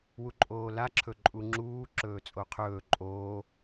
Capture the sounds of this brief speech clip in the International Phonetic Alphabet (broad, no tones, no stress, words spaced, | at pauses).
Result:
wuǃʼoːla ǁʰɵǃʼuŋ͡ǁuː ǁɵːt͡sʼoqʰɵː ǃʼoː